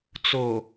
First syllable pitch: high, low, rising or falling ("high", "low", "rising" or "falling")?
low